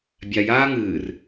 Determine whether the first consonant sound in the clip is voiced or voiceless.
voiced